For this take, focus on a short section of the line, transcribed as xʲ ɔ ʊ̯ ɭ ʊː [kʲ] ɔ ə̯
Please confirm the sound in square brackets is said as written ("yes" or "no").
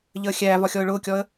yes